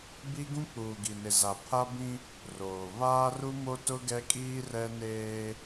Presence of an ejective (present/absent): present